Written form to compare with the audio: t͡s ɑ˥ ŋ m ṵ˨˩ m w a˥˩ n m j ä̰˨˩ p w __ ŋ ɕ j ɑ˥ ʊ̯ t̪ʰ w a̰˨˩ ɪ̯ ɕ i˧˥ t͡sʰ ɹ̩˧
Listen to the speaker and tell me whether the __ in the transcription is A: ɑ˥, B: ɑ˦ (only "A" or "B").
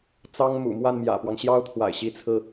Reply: B